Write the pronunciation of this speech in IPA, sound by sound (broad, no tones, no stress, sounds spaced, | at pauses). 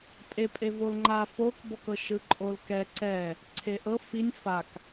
pʼ e pʼ e v o l ŋ͡ǃ a f o k b ɔ k ɤ ʃ ɯ ǃʼ o l k ɛ ǀ ɛ | ǀʰ e ʔ ɤ f i nʲ f a k